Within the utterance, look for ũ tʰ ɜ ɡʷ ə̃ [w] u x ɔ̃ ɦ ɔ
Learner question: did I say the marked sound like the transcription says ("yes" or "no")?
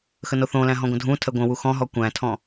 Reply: yes